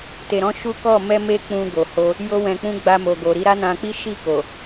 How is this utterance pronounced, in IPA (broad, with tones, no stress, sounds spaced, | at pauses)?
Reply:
t e˨ ɾ ɔ̃˨˦ ʃ u˦ k ɔ˦˨ m ɛ˧ m e˧ k͡p ũ˧ ɡ o˨ h o˧ | j o˧ w ɛ̃˨ k͡p ũ˧ ɡ͡b a˧ m o˨ ɡ o˨ ɾ i˨˦ ɾ a˦ n ã˧ k͡p i˦ ʃ i˦˨ k o˨